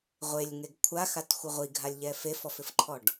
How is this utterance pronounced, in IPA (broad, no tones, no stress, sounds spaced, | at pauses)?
ʁʷ e lʲ ŋ e ɡ kʷʰ a x a t xʷ ɪ ʁʷ i ɡʱ a lʲ ʎ ɛ f e f ɔ f ɪ f ǃʰ ɔ ɖ